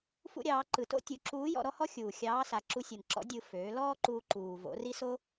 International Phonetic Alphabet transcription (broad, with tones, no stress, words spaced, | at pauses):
fṵ˧ ɾʲɑː˩˧ ǃɯ˩to̰˥ tʲu˩˧ǁuː˧˥jɔ̰˧ ɾɔ˥hɔ˥ xʲuː˩ xʲɑː˧˥sa˩˧ ǁu˧sʲɯ˩nǁɔ̰˧˥ dʲɯ˧ føː˩˧ lɔː˥ǃuː˧ ǃuː˩ vo̰˩˧ri˥so˥